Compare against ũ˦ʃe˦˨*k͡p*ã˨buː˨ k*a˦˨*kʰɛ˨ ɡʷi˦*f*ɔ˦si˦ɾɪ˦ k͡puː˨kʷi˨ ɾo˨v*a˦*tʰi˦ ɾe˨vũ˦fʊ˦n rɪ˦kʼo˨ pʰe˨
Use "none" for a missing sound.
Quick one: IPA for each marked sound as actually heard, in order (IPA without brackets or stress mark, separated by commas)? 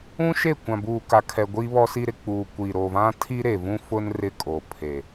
kʷ, a˨, β, ã˦